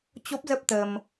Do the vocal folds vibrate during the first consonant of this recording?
no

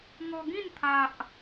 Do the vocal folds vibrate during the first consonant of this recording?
yes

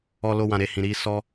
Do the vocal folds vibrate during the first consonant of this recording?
yes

